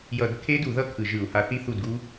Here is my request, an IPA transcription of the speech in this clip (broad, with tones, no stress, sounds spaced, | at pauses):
j ʌ˧˩˧ d kʰ e˦˥ d u˧˩˧ ð ʌ˦˥ kʰ ɯ˨˩ ʒ ɯ˧˩˧ u̯ h a˨˥ θ i˦˥ θ u˦˨ d ɡ u˦˥